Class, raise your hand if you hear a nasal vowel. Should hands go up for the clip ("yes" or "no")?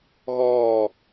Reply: no